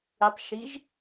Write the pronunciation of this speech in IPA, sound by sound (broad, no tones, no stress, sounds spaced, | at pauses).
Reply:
ɪ tˤ ʃ i ʒ